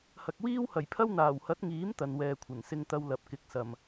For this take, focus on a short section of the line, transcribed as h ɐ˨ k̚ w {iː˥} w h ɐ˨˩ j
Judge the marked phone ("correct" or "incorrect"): correct